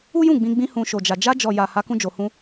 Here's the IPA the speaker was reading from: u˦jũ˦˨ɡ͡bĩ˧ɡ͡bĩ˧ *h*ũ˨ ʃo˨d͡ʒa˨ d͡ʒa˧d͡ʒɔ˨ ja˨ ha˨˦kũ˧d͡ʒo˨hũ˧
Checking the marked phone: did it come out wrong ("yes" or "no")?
no